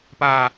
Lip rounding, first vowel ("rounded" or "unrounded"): unrounded